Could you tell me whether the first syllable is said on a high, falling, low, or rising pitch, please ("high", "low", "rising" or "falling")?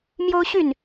high